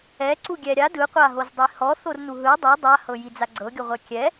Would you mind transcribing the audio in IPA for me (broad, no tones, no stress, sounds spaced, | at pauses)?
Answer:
ɛ ǀ u ɡʲ ɛ ɾʲ a d ɯ qʷ a ɦ o z dˤ i h ɔ θ o r n u ɦ ɯ dˤ o dˤ a h ɤ j i d͡z a ɡ͡ǀ ɤ ɡʲ o ʁʷ ɛ kʲ ɛ